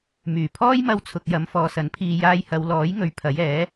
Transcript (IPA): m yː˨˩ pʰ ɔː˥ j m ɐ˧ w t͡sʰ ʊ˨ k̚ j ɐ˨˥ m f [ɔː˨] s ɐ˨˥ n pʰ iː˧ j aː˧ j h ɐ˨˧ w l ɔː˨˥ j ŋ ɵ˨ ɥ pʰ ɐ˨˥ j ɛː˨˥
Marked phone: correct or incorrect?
correct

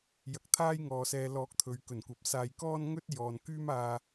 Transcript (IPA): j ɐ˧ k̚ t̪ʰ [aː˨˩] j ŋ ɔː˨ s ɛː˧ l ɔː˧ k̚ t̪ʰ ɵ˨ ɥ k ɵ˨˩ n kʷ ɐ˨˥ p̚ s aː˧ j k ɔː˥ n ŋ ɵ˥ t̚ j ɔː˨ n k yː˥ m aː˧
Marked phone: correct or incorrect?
incorrect: aː˥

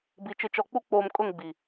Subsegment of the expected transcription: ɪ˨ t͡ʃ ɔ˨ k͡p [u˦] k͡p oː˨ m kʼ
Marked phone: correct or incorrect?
correct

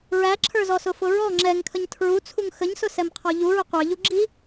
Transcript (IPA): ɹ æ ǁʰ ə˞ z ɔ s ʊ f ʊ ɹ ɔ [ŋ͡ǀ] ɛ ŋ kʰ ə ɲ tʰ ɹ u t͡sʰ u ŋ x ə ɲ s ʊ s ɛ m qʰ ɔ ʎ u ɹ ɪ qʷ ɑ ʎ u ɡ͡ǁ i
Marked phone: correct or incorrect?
incorrect: ŋ͡ǁ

